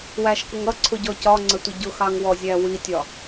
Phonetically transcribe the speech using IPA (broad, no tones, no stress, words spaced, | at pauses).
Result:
wæʃkʊŋ ʌǀʰʊɟɔ cɒŋ͡ǀətʷə ɟʊxɑŋwɔzʲæ witʲɒ